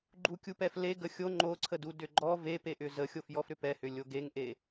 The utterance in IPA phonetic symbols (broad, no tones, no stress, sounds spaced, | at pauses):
ɡ͡ǃ u kʲ u p ɛ f l e ɡ ə xʲ o ŋ͡ǃ o ǀʰ ə d u d ʏ ɡ͡ǃ ɔ v e p e ʔ ʏ z ə xʲ o f j ɔ f ɾ ʏ p ɛ h ʏ lʲ o ɡ e ŋ ʔ e